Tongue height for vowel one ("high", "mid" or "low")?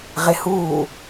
mid